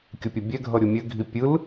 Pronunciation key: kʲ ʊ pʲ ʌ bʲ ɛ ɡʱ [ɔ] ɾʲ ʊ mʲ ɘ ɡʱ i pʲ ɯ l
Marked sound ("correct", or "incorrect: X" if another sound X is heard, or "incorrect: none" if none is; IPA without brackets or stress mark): incorrect: ʌ